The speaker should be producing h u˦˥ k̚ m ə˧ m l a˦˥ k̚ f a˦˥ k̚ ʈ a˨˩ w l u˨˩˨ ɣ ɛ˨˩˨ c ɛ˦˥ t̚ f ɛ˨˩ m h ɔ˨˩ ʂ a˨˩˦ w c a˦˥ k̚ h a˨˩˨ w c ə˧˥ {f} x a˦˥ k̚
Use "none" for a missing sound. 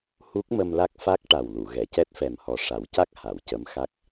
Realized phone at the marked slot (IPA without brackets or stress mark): m